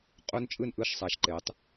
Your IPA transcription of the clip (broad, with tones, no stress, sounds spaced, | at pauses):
qʼ o˦˥ n t͡ʃʼ ɯ˦˨ n ʔ ɯ˦˨ ʃ sˤ a˨˥ ʃ ǃ e˨˥ tˤ